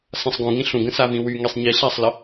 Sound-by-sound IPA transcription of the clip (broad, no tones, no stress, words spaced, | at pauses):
sãsˤɡũ ŋĩɬũɡə̃ savĩwy ŋisˤɲi ɬasˤlə